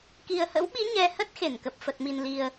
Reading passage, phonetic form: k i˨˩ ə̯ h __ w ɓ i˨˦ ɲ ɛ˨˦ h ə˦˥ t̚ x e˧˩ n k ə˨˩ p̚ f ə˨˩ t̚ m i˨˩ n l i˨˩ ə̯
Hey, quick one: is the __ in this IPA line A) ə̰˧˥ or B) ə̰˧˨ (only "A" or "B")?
A